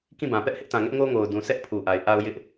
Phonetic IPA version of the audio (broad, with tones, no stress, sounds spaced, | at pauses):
k ĩ˦˨ b ã˨ p ɛ˦ ʔ h ɪ˦ ʔ t ã˨ ŋ ɛ˦ ʔ ŋ o˦ ŋ o˨ ʊ̯ d ũ˨ s ɛ˦ ʔ pʰ u˨ ʔ a˨ ɪ̯ ʔ a˦ ʊ̯ j ɪ˦ ʔ